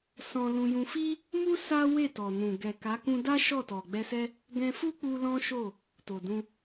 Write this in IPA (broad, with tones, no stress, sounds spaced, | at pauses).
s ɔ̃˧ l ũ˧ j ũ˧ f i˦ | m u˦ s a˦ w e˦˨ t ɔ˨ n ũ˨ ɡ ɛ˨ k a˨˦ k ũ˧ d a˦ ʃ ɔ˦˨ t ɔ˨ ɡ͡b ɛ˧ s ɛ˦ | ɡ ɛ̃˧ f u˦ k͡p u˧ l ɔ̃˦ ʃ o˦˨ | t o˨ d ũ˧